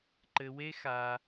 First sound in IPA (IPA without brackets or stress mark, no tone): ǃ